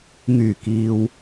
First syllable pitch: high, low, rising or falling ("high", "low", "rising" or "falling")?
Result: low